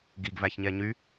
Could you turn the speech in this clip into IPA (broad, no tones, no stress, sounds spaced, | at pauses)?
ɡ i ɡ v æ ç ɲ ɛ ɲ y